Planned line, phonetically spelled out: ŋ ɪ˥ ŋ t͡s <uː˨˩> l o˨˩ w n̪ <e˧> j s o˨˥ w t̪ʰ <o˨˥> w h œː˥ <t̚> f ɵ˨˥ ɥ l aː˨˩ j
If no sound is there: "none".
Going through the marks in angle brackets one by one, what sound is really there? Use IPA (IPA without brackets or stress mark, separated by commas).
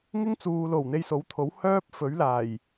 uː˨, e˧, o˨˥, p̚